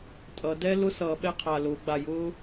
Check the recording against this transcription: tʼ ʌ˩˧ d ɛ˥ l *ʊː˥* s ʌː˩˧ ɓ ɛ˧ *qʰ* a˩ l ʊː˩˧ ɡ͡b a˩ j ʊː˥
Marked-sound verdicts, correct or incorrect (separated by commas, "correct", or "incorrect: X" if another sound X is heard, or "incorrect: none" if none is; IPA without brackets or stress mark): incorrect: ʊ˥, correct